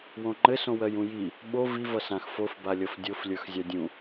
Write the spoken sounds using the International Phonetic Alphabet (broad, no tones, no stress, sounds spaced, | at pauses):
w õ ŋ͡ǃ ɘ s õ w ɜ j ũ j i | ɓ o v i v ʌ s ã x f o f b a lʲ ʌ f dʲ o f lʲ ə˞ x zʲ a dʲ ũ